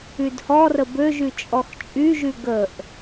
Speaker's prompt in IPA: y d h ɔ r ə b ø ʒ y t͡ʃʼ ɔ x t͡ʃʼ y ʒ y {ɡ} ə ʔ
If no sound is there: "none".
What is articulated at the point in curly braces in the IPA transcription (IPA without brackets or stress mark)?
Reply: ɡ